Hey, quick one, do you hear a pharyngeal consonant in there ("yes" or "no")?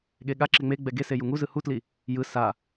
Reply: no